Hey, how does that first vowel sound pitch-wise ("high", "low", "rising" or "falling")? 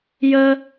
high